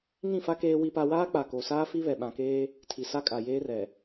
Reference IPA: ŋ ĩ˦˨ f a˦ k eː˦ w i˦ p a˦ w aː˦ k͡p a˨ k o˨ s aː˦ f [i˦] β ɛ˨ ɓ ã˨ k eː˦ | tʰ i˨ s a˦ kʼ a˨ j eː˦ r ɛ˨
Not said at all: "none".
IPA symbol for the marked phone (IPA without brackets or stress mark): i˦